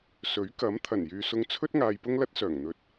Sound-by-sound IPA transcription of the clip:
s ɵ˨˥ ɥ k ɐ˨˥ m t̪ʰ ɐ˨˩ n j yː˨ s ʊ˧ ŋ t͡sʰ ɵ˥ t̚ ŋ aː˧ j p ʊ˥ ŋ l ɐ˥ t̚ s œː˨˩ ŋ n̪ ɵ˨˥ t̚

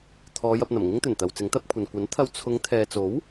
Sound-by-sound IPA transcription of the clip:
t̪ʰ ɔː˨˧ j ɐ˨ p̚ n̪ ɐ˨˩ m ŋ ɪ˥ ŋ t̪ ɵ˨˩ n t̪ ɐ˨ w t͡s ɪ˨˥ ŋ t̪ ɐ˨˥ p̚ kʷʰ ɐ˨ n kʷ ɐ˨˥ n t̪ʰ ɐ˧ w t͡sʰ ʊ˨˧ ŋ t̪ʰ ɛː˨ t͡s o˨˥ w

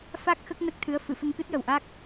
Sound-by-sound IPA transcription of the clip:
f a˦˥ k̚ x ə˦˥ k̚ n ə˦˥ k̚ t̪ʰ ɨ˧˥ ə̯ f ɨ˨˩˨ f ə˧ ŋ k ɨ˦˥ t̚ j ə˨˩ w ʔ a˦˥ k̚

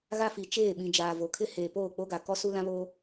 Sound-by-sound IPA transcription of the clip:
ɣ a˦ f i˨ t͡ʃ eː˦˨ ɓ ĩ˨ d͡ʒ aː˨ v o˨ kʰ ɪ˦ h eː˨ p oː˦˨ k͡p o˦ ɡ a˨ k ɔ˦ s u˦ l ã˦ β oː˦

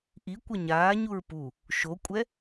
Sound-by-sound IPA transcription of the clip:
ʔ i kʷ ʌ ɲ aː ɲ u ɹ p u | ʃ o kʷʼ ɛ

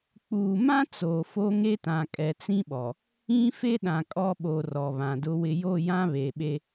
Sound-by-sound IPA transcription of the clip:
k͡p uː˨ m ã˦ t͡s oː˨ f o˦ ŋ e˦ t ã˨ kʼ ɛ˨ t͡s ĩ˦ ɓ ɔ˨ | ĩ˦ f e˦ ɗ ã˨ kʼ ɔ˦ ɓ o˨ r ɔ˨ β ã˨ d ʊ˦ w ɪ˨ j o˦˨ j ã˦ β eː˨ ɓ e˦

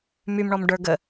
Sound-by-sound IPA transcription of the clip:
m y m ɳ ɔ m ɖ ə˞ ɡ ə

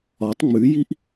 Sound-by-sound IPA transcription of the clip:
ɒ tˤ ŋ͡m ʉ j i ʔ

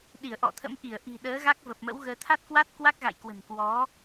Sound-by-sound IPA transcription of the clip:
ɗ i˧˩ ə̯ ʔ ɔ̰˧˨ t̪ʰ ə̰˧˥ m ʔ i˧˩ ə̯ ʔ i̤˨˩ ɗ əː˨˦ ɣ a˦˥ k̚ v ə˨˩ p̚ m ə̰˧˥ w ɣ əː˧ t̪ʰ a˦˥ t̚ k w a˦˥ t̚ k w a˦˥ k̚ ɣ a̰˧˨ j k w ə̤˨˩ n k w ɔ˨˦

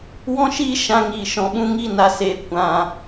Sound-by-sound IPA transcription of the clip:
w ɔ̃˦ ʃ iː˦ ʃ ã˧ ŋ iː˨ ʃ ɔ̃˨ ɓ ũ˦ ŋ i˦˨ n a˨ s eː˨ kʷ ã˨

